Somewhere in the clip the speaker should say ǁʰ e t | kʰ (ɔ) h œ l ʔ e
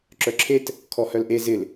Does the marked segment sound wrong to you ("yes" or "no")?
no